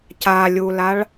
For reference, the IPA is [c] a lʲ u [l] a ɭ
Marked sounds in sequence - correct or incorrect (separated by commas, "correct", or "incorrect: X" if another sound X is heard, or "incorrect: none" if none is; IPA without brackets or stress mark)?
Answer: correct, correct